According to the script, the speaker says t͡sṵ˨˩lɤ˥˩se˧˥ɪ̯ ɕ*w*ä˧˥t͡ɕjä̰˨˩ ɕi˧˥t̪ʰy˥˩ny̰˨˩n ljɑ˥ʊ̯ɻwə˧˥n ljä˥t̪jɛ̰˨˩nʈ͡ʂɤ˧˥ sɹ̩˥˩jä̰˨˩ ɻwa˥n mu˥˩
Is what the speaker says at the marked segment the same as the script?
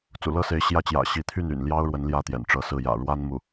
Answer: no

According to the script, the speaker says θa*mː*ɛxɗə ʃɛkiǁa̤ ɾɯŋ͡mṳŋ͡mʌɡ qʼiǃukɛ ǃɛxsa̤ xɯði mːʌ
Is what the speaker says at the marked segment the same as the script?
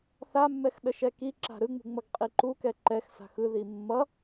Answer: yes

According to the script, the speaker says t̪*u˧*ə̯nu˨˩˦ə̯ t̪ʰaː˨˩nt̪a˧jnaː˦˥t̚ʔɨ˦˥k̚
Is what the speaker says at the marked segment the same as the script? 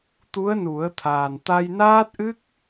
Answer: no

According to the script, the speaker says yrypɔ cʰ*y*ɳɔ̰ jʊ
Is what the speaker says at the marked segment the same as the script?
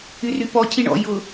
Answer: no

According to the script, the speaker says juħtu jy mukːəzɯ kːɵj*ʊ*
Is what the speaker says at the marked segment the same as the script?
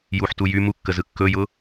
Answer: yes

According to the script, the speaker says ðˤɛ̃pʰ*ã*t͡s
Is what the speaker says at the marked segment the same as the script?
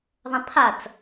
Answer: no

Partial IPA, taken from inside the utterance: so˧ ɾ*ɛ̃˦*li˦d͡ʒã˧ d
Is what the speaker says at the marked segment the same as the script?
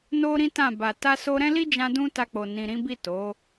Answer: yes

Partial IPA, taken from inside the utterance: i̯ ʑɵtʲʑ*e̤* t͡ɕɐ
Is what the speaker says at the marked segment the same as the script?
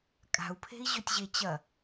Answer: no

